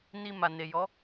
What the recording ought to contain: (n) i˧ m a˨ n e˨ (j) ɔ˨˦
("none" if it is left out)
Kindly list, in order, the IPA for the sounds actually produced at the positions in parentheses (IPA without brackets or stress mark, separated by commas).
n, j